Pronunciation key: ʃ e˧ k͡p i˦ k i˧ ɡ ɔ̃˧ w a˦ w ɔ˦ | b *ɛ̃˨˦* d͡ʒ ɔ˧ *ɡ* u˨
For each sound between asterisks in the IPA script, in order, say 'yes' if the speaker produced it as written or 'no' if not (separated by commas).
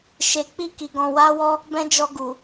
no, yes